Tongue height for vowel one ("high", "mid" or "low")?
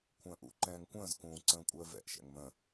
mid